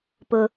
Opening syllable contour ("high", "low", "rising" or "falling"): high